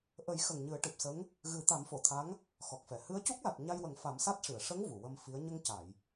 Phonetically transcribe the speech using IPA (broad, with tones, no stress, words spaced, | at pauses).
ʔə˨˩˦jxə˨˩ŋ ɲɨ˨˩˦ə̯ʈɨ˨˩p̚sə˧˥ŋ | ɣɨ˨˩˦t̪a˨˩˦mfo˨˩˨t̪ʰa˧˥ŋ | xɔ˨˩k̚fɛ˨˩˨ hɨ˧˥ə̯cu˦˥k̚la˨˩t̚ ɲa˧jwə˨˩˦ŋ fa˨˩˦msa˦˥t̚ʂɨ˨˩˨ə̯ ʂə˧˥ŋ vu˨˩˨wə˧mfi˧˥ə̯ ɲə˧ŋca˨˩˨j